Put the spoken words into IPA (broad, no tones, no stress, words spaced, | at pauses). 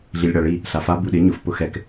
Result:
ɮilʲɽaɭi | ɬafa buɗɪ ɲʊf pʊxɛk